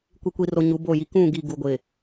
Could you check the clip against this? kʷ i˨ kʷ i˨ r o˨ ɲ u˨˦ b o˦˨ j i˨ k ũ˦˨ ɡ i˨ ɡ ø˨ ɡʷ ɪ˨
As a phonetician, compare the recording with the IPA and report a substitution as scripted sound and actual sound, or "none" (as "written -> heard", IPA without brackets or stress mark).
ø˨ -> u˨